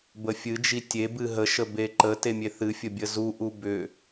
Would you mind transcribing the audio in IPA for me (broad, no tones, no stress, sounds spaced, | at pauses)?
b ə fʲ ɨ d͡ʒ i tʲ e b ɨ ɦ ə ʃ ə b e ǃ ə t e mʲ e θ ɨ fʲ ə bʲ ə z u ʔ u b ʏ